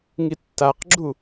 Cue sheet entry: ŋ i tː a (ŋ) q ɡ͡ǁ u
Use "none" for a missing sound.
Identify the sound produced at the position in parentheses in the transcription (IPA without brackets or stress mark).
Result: none